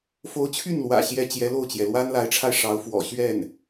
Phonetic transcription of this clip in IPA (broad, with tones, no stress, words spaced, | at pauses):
fo˧˥ʊ̯t͡ɕʰy˥˩nlwä̰˨˩ ɕjɛ˥˩ t͡ɕjɛ˧˥lo˥˩ʊ̯t͡ɕjɛ˩ lwa˥nla˧˥ɪ̯ʈ͡ʂʰa˧ɪ̯ ʂɑ˧˥ʊ̯ fwɔ̰˨˩ ɕɥɛ˥˩n